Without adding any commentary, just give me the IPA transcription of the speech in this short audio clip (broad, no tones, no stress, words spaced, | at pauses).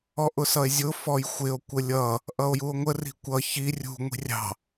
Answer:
ɔʔʊsʌe̯zʲʊ fɔjxʷɪo̯ kʷəlʲʌ | ʔʌo̯juo̯ŋʷə ri̤kʷʌ çi rʲṳ ŋʷi̤rʲɑ̤